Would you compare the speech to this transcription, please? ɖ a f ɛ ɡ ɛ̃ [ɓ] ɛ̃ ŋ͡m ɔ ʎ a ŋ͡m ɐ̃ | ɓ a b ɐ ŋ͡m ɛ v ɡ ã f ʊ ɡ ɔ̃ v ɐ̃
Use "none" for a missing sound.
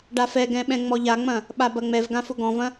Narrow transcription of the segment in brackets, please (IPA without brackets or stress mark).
ɓ